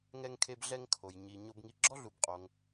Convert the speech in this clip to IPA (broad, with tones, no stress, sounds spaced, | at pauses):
ŋ ɛ˧ ŋ kʰ e˧ b ɮ ɛ˧ ŋ kʰ o˩ j ɲ i˩ ɲ o˧ b ŋ i˧ ɡ͡ǁ ɔ˥ ɮ u˩ b qʼ o˩ ŋ